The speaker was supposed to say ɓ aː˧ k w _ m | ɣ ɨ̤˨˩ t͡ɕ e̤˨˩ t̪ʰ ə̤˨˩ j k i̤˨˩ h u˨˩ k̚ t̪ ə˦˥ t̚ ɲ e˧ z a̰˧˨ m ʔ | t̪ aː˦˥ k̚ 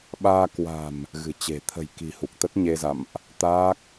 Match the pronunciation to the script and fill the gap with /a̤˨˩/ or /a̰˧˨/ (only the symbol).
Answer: a̤˨˩